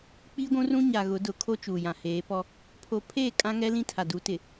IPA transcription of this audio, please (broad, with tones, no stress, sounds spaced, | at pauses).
k͡p iː˦ ɡʷ ũ˦ r ũ˦ ɲ a˨ ɣ ʊ˨˦ d ʊ˨ kʰ o˦ t͡ʃ uː˨ j ã˨ h eː˨˦ p ɔ˦ | pʰ o˨ pʰ eː˦˨ kʼ ã˦ ŋ ɛ˦ l ĩ˦ tʰ a˨ d u˨˦ t ɪ˨